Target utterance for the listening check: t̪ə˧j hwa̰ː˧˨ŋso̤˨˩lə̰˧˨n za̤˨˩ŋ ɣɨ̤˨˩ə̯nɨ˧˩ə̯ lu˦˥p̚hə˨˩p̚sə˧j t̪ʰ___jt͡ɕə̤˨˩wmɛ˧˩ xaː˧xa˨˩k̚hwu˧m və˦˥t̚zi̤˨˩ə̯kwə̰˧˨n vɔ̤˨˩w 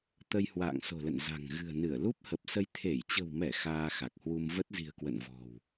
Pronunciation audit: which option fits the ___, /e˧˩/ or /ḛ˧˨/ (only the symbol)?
e˧˩